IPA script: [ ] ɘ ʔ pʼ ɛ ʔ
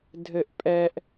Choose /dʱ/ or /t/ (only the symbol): dʱ